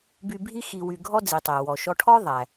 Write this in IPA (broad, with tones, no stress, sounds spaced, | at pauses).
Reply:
b y˧ bʱ i˥ x i˧ w y˧ ɡʱ ɔ˥ d͡z i˩ tˤ æ˩ w ɔ˩ ʃ ɔ˧ ʈʰ ɔ˥ ðˤ æ˩